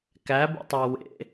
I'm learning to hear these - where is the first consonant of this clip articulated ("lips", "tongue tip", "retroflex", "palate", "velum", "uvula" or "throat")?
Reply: velum